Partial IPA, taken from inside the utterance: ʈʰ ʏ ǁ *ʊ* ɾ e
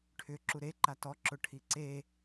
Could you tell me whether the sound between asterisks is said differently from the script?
yes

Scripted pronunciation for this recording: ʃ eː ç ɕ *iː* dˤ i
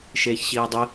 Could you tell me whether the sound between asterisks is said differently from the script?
no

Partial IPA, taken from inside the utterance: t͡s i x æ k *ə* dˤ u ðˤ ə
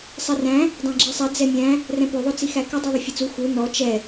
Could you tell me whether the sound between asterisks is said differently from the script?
no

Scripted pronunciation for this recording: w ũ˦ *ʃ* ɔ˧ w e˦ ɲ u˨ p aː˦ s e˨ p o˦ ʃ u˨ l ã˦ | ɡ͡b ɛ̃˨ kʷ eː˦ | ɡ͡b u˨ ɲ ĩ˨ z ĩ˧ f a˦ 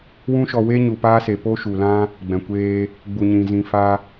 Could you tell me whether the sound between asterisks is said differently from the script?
no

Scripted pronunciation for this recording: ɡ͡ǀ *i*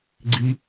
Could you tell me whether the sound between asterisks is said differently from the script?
no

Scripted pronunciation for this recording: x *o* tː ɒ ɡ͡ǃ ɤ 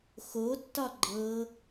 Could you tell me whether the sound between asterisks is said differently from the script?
no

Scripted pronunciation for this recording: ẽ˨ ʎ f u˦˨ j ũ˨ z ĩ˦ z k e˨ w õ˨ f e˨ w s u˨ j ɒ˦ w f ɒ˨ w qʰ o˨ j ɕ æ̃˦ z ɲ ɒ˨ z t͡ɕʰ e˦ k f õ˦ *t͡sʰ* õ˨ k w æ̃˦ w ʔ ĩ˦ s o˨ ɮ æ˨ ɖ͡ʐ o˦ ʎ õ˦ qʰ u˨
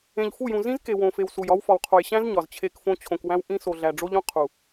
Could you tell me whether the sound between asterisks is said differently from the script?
yes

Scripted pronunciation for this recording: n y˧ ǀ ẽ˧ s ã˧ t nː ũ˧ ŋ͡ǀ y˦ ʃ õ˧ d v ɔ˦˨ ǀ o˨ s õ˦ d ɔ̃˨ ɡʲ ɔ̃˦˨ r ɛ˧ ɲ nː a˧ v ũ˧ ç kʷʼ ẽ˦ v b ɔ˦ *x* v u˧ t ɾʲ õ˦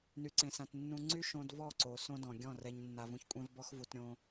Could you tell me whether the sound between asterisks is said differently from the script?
no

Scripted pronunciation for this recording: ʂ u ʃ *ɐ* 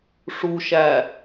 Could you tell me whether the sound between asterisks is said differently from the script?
yes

